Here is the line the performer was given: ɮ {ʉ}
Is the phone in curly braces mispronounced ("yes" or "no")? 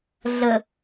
yes